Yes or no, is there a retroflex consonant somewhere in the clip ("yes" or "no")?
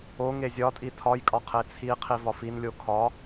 no